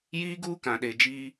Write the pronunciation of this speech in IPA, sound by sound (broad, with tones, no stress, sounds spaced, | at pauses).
j iː˦ ɡ uː˦ k ã˨ ɗ e˨ d͡ʒ iː˦